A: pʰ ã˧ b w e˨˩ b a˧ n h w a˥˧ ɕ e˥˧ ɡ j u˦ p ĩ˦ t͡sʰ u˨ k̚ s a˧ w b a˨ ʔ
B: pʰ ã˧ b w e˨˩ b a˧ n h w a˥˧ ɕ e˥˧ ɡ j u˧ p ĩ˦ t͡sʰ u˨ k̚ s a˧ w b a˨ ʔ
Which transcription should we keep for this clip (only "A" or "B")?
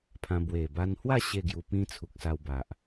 B